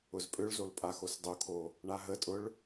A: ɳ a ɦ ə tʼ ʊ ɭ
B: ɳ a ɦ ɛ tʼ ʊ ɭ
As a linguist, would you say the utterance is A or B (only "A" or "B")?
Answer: A